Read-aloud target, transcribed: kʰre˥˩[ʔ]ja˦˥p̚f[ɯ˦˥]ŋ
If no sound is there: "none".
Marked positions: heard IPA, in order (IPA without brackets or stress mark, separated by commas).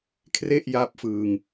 ʔ, ɯ˧